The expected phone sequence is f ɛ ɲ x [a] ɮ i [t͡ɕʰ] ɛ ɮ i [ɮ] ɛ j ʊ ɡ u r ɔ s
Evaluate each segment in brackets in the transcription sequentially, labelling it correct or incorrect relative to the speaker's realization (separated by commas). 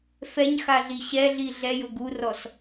correct, incorrect, correct